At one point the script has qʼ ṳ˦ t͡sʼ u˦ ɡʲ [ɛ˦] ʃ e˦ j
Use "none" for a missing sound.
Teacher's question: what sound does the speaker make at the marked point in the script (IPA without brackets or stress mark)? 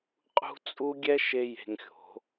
ɛ˦